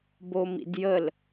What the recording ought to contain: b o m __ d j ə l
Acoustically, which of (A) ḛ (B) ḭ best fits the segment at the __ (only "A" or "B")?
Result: B